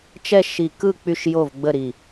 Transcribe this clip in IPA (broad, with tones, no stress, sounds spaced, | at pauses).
t͡ʃ ɛ˥˨ ʃ i˧˩ k ɯ˥˨ k͡p y˥˨ ʃ j o˥˨ v ɡ͡b ə˥˨ ɾ i˧˩